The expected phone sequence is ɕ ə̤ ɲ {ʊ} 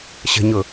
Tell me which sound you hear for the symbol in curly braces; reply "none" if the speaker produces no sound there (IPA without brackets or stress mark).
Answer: ʊ